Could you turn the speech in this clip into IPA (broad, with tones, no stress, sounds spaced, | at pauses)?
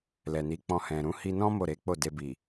l ɛ˨ n i˨˦ k͡p ɔ̃˧ h ɛ̃˨ ɾ ũ˨˦ h i˧ n ɔ̃˦ m o˦˨ ɾ e˨˦ k͡p o˦˨ d e˧ b i˨